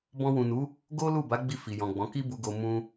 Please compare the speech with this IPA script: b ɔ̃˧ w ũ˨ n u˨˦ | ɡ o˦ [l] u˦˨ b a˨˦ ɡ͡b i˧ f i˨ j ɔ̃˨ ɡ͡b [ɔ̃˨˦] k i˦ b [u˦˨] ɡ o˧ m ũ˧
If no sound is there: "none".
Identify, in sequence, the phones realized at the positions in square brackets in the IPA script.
l, ɔ̃˨˦, u˧

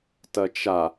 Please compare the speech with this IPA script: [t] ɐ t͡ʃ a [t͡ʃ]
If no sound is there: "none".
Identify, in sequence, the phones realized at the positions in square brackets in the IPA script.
t, none

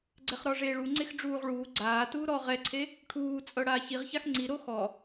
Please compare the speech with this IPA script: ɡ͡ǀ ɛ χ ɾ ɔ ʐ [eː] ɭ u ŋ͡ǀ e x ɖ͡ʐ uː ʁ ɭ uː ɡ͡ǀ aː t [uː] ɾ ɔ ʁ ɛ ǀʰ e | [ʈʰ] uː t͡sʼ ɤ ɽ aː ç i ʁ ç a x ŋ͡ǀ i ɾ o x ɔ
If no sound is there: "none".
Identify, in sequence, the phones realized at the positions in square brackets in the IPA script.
eː, uː, ʈʰ

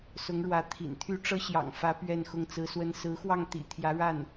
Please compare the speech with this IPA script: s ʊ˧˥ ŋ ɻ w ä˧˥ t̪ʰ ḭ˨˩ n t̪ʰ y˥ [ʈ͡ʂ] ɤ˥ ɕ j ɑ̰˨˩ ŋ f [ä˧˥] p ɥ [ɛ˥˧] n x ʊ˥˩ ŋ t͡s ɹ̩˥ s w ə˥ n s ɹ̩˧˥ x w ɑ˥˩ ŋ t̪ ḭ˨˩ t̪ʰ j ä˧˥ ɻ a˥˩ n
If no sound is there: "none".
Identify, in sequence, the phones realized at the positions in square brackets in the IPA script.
ʈ͡ʂ, ä˧˥, ɛ˥˧

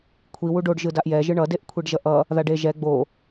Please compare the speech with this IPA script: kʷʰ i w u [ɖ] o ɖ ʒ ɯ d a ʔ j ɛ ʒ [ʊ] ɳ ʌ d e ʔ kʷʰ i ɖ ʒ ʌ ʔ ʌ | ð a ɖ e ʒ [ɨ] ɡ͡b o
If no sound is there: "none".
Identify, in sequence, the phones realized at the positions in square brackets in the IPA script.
ɖ, ɯ, ɛ

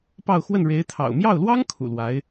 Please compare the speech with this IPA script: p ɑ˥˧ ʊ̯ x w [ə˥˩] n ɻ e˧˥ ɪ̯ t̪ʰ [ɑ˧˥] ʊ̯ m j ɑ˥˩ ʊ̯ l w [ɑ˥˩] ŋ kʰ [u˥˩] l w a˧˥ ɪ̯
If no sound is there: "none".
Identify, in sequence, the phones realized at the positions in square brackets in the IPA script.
ə˥˩, ɑ̰˨˩, ɑ˥, ṵ˨˩

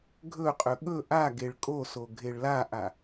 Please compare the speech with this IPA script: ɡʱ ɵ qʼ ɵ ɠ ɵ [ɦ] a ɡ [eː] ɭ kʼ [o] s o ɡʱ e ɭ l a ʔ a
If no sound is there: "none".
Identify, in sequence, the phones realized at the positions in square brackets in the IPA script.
ʔ, e, o

